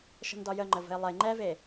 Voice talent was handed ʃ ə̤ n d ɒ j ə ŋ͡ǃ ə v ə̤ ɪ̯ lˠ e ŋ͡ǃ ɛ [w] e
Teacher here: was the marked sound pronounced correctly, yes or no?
no